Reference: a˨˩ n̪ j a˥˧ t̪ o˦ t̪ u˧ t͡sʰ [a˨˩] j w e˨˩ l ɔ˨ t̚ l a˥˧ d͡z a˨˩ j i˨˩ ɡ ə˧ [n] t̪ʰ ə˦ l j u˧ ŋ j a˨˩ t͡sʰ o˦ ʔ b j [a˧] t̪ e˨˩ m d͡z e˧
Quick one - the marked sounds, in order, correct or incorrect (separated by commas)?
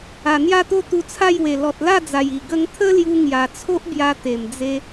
incorrect, incorrect, correct